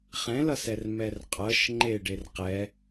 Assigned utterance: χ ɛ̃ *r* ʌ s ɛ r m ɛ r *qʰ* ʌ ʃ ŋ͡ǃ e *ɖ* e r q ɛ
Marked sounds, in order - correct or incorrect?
incorrect: l, incorrect: qʼ, correct

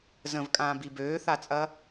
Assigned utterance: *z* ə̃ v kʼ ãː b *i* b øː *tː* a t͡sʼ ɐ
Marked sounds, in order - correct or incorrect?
correct, correct, incorrect: θ

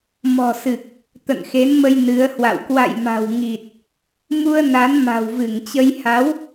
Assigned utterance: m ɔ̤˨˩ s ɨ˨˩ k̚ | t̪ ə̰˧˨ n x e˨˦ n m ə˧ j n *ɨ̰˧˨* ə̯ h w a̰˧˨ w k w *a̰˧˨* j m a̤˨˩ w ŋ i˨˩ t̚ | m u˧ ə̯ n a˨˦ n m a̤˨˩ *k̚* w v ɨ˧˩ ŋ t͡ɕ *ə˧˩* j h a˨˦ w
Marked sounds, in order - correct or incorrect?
incorrect: ɨ˨˦, correct, incorrect: none, incorrect: ə˧

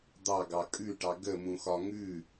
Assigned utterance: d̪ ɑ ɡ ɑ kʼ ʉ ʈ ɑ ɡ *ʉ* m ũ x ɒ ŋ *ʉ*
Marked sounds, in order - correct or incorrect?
incorrect: ə, correct

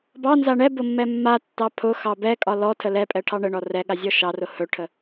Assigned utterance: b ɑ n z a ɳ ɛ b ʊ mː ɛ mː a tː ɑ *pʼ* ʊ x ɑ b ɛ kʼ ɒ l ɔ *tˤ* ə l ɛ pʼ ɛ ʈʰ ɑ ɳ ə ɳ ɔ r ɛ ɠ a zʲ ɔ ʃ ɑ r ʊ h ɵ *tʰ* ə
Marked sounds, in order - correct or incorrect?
incorrect: pʰ, incorrect: tʰ, incorrect: ʈʰ

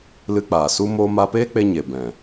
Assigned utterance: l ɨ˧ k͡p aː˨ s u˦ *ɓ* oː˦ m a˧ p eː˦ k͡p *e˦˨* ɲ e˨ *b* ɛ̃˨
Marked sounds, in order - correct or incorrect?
incorrect: m, incorrect: e˧, correct

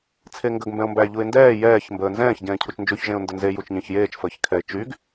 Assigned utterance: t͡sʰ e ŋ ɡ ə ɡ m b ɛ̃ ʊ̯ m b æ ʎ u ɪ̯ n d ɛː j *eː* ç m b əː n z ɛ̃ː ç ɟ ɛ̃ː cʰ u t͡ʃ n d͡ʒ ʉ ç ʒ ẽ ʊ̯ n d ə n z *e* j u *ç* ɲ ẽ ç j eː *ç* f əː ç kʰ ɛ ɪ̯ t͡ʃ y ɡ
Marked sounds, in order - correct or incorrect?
incorrect: ɛː, correct, incorrect: t͡ʃ, incorrect: t͡ʃ

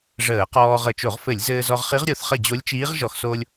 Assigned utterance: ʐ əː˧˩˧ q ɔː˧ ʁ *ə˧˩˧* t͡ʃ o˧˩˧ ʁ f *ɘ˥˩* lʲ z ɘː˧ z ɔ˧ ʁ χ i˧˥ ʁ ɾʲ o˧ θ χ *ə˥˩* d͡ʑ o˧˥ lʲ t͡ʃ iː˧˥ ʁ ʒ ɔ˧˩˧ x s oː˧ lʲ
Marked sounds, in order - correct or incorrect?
correct, incorrect: ɘ˧˩˧, correct

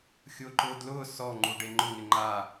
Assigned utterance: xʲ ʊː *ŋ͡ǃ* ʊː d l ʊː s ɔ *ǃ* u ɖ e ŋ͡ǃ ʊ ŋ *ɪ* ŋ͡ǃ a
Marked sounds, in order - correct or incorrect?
incorrect: ǃ, incorrect: ŋ͡ǃ, correct

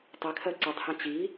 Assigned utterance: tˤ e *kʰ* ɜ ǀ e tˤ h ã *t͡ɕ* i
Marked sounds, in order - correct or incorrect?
correct, correct

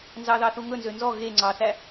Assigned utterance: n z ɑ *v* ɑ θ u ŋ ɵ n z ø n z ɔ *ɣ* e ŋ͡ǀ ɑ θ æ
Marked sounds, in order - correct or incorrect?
incorrect: ð, correct

